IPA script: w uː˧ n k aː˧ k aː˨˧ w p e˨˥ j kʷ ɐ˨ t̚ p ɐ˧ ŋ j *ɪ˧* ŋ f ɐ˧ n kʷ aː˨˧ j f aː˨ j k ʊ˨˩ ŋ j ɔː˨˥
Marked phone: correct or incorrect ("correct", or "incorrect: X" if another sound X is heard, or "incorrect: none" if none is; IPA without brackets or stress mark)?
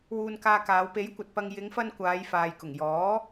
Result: incorrect: ɪ˨˧